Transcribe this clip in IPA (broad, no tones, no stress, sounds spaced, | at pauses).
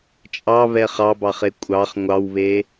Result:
t͡ʃʼ ɑ β ɛ χ ɑ b ɑ χ e kʷʼ ɑ χ ŋʷ ɑ w β e